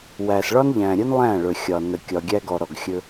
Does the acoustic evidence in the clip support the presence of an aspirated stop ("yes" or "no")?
no